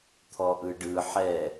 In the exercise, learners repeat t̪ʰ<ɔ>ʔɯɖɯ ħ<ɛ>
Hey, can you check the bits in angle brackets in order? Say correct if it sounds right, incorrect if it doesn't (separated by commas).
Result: correct, correct